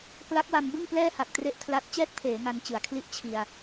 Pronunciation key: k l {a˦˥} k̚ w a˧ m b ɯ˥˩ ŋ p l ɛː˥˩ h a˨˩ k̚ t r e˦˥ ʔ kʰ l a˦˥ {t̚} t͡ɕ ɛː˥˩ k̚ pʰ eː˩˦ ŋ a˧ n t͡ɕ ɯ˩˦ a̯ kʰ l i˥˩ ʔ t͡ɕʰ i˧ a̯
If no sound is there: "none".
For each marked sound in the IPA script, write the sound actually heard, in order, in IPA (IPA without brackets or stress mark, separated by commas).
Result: a˦˥, t̚